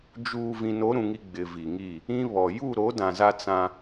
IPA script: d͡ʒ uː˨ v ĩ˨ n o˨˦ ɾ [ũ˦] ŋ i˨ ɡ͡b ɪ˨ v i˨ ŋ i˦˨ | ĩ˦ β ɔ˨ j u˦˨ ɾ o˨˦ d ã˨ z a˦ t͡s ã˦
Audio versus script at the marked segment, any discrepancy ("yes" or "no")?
yes